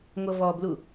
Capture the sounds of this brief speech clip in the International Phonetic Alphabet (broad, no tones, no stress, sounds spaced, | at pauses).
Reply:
ŋʷ ʌ v ɔ b l u